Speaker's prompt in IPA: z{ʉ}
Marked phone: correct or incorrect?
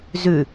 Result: correct